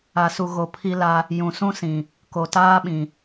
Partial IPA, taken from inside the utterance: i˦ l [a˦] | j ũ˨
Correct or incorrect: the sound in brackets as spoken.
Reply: correct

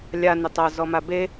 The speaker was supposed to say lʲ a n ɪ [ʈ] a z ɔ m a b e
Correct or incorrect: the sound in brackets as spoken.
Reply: incorrect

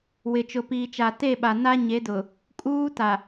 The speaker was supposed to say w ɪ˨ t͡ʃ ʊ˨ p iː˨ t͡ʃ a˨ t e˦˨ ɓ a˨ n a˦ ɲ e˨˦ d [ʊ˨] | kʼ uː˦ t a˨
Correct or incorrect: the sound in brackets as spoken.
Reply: correct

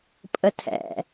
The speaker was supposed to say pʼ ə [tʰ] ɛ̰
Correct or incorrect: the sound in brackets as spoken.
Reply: correct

